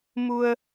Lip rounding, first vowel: rounded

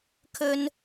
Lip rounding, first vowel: rounded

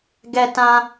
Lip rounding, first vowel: unrounded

